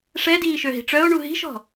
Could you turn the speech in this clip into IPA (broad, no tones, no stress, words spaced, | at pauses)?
ʂɛdiː ʃøɦi̤ʈ͡ʂœo̯ɳu ɦi̤ʃɔ̤